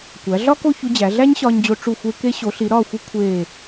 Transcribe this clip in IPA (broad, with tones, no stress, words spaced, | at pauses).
kʷæ˩˧ ɮɒ˥ko˥˧ çu˧d͡ʑæ˩˧ɮæ˥ɲ ɕɒː˧ɲd͡ʑo˧ ʈ͡ʂu˧˩xʷe˧ ke˧ ɕo˩˧ɬi˩˧ɾɒː˧˩xʷi˧ kʷʰeː˧˩